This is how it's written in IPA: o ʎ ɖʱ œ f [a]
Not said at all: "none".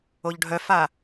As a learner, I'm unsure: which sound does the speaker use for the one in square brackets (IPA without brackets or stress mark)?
a